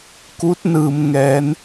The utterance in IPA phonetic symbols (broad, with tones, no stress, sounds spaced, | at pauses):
k u˧˥ t̚ n ɯː˩ m ŋ ɛː˩˧ n